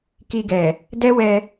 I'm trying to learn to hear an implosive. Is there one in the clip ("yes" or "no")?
no